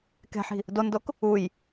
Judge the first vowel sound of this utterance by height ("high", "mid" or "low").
mid